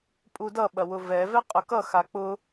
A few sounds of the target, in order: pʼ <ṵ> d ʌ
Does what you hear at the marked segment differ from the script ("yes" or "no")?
yes